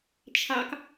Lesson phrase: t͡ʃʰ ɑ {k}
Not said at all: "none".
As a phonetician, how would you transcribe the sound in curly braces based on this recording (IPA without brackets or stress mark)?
k